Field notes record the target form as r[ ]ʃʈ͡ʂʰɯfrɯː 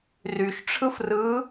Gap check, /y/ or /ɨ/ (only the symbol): y